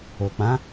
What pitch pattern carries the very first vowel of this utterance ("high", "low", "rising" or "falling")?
low